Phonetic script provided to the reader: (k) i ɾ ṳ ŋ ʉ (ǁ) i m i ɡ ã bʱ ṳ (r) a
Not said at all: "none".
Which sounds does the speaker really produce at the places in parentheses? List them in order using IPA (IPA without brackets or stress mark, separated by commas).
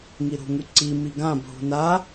ŋ, ǀ, n